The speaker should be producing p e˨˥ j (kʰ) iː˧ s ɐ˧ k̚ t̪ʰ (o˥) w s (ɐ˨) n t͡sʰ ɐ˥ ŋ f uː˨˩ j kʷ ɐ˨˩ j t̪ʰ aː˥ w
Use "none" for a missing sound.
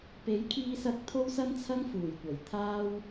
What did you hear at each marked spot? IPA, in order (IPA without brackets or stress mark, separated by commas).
kʰ, o˥, ɐ˥